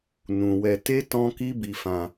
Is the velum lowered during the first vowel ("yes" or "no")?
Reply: yes